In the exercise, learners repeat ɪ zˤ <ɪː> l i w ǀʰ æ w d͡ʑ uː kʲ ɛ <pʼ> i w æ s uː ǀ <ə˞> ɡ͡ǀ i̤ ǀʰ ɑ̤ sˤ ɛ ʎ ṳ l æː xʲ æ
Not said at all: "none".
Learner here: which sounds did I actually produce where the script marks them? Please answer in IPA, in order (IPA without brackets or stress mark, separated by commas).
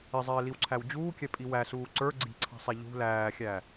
ɪː, pʼ, ə˞